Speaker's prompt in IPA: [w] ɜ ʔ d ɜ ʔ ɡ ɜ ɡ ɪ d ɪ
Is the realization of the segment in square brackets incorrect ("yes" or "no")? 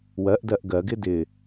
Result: no